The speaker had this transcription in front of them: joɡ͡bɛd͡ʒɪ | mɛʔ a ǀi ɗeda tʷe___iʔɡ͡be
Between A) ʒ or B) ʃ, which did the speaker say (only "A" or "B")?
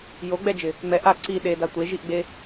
A